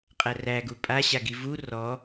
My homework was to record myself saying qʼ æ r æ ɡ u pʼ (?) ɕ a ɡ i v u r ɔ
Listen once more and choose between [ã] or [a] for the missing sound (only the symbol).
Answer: a